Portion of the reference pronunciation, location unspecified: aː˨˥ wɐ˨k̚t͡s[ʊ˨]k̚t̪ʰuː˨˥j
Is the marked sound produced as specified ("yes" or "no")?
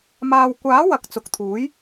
yes